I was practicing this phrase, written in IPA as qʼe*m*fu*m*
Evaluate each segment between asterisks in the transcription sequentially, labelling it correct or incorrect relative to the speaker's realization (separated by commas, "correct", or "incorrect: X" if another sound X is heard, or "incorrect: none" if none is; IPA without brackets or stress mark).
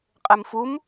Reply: correct, correct